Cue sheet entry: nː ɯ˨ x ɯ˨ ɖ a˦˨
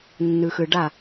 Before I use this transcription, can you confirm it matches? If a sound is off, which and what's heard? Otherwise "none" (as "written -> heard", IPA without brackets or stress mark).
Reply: none